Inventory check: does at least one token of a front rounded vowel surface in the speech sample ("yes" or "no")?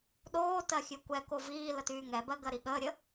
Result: yes